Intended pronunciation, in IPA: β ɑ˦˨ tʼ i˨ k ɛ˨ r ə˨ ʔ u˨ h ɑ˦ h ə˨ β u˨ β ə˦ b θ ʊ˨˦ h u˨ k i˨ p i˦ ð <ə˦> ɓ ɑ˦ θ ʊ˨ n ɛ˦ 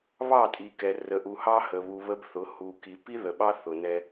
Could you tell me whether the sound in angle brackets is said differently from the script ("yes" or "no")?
yes